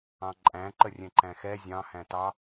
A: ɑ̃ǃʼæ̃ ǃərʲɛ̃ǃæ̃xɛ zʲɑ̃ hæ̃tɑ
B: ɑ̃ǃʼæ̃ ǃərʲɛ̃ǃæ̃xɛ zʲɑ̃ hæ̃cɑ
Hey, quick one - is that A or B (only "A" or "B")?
A